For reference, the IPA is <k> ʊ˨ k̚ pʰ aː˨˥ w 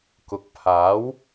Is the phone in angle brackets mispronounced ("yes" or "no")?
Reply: no